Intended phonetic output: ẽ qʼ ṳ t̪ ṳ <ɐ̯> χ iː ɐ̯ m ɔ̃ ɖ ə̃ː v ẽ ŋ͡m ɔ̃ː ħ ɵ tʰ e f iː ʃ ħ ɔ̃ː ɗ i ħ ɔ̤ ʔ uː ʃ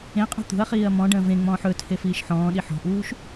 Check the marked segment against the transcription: correct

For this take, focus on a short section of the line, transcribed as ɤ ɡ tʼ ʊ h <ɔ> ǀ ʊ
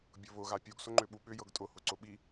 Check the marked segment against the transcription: incorrect: ʊ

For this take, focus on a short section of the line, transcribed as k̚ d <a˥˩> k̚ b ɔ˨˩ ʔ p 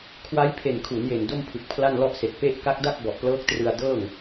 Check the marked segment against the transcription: correct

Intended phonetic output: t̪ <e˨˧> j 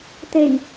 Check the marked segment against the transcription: incorrect: e˨˩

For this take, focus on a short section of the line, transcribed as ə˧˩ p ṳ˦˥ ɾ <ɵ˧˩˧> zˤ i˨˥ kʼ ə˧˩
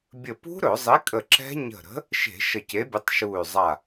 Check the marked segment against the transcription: correct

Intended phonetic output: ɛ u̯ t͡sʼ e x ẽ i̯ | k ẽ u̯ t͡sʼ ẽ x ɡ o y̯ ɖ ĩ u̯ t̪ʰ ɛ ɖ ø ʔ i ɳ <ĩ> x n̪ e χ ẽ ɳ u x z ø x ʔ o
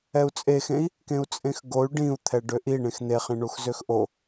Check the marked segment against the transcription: incorrect: ẽ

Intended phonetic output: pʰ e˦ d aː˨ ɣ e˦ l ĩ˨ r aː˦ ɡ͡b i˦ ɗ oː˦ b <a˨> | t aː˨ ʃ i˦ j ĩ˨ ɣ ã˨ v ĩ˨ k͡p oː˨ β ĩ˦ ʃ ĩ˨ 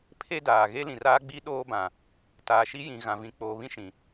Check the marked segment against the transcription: incorrect: ã˨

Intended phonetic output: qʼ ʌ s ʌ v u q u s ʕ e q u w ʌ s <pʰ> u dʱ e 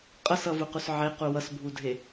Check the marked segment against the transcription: incorrect: bʱ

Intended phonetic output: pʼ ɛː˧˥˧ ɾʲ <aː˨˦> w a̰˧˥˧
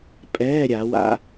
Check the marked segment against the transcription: incorrect: a˨˦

